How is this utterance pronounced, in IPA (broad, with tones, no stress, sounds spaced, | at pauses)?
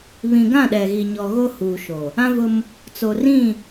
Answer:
β ĩ˨ ɡ ã˦˨ ɗ ɛ˨ ɣ i˨ ɲ ɔ˨ ɣ o˦ h uː˨ ʃ o˨ | ã˦ v ʊ˦ m | t͡s o˨ r ĩ˦˨